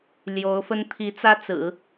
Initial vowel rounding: rounded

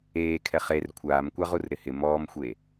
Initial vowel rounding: unrounded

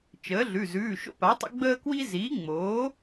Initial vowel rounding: unrounded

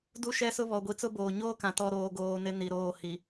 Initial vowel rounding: rounded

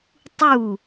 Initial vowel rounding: rounded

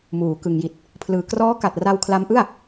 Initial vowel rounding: rounded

